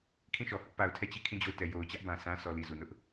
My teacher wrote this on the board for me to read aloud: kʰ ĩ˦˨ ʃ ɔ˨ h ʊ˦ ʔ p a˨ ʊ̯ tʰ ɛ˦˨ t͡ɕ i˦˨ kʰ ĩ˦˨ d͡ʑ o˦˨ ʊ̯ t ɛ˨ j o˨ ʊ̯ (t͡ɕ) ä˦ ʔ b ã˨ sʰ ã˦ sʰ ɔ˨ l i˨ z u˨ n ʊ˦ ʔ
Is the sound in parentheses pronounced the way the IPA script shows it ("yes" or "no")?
yes